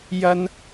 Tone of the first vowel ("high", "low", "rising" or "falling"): high